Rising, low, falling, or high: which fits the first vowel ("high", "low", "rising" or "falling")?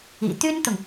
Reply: low